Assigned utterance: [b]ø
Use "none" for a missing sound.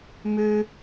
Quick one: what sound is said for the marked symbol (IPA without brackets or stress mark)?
m